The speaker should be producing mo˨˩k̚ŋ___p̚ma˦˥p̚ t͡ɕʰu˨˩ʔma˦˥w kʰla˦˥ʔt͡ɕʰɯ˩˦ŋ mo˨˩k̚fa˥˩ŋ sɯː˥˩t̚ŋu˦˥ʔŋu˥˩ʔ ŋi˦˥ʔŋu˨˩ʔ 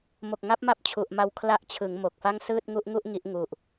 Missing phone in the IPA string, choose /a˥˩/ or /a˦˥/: a˦˥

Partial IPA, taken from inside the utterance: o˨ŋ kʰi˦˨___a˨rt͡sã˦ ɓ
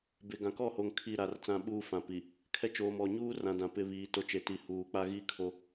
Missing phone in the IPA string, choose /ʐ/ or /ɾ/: ɾ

